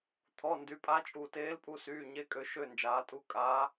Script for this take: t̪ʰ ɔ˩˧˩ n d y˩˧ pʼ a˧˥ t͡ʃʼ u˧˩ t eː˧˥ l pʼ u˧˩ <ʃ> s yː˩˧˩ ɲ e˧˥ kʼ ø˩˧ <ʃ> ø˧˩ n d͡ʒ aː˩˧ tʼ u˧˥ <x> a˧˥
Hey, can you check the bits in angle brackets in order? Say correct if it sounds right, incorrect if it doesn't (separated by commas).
incorrect, correct, incorrect